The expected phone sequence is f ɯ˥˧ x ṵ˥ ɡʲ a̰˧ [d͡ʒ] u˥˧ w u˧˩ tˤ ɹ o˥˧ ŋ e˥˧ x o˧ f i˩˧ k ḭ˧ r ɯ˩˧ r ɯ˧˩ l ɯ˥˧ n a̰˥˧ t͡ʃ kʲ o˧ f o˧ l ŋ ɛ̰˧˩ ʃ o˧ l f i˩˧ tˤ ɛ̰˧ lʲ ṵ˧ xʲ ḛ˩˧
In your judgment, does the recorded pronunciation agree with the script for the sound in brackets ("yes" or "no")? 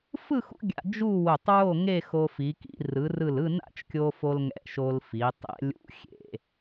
yes